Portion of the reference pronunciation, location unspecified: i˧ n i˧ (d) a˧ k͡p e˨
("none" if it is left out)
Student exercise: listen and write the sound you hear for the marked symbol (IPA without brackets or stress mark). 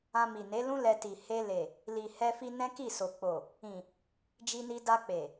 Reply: d